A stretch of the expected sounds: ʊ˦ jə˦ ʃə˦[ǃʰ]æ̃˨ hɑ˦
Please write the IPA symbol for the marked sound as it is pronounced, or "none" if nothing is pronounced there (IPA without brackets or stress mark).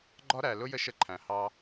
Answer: ǃʰ